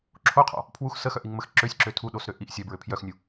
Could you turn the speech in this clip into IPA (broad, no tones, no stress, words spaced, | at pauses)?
ǁʰoqʰɔ̰ | pʰwux səxœʔiŋməx ǁøsʲǁø tʰuɗosɾø ʔiʔ sʲœbɹø pʰjœxnʲu